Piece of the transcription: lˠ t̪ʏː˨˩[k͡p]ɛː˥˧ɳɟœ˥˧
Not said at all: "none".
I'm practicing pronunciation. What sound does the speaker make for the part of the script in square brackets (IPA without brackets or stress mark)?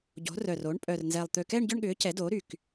k